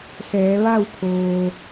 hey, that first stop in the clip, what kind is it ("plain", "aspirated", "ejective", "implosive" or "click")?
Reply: aspirated